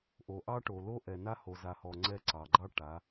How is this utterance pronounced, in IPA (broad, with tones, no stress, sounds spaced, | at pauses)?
ʔ o˨ ʔ ɑ˦ ʈ o˨ l o˦ ʔ ɛ˨ n a˦ h o˨ z a˨ h ɔ˨ ŋ͡ǀ ɛ˦ ǀ ɑ˨ ɡ͡ǃ ɑ˦ ʈ a˨˦